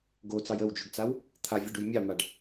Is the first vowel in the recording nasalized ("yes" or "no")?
no